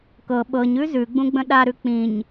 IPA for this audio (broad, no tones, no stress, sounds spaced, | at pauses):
k ɤ ɓ ɤ ɲ ʉ z ʉ ɡ͡b ũ ɡ͡b ə̃ ɗ a ɾ ʉ k͡p ĩ ɲ